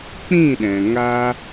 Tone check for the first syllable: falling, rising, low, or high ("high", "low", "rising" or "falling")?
falling